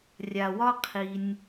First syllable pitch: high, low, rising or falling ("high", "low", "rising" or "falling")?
low